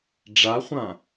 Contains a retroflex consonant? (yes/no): yes